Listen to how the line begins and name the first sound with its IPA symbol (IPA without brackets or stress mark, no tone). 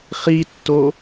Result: χ